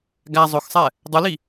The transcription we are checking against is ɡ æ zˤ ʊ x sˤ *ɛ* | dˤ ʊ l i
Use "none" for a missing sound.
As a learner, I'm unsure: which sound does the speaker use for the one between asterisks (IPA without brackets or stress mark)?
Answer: ɛ